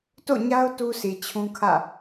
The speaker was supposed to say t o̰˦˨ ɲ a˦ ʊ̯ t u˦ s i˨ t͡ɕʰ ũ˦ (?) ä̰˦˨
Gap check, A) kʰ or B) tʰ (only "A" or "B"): A